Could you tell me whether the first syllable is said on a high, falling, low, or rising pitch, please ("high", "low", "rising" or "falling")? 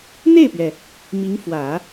falling